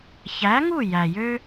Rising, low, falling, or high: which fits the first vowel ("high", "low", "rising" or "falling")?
rising